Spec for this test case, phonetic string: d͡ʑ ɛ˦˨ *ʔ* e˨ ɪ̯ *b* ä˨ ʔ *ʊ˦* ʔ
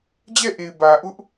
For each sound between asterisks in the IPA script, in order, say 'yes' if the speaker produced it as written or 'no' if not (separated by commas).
yes, yes, yes